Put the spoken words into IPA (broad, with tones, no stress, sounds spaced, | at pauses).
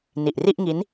n i˨˩ ʔ r i˥˩ ʔ ŋ i˦˥ n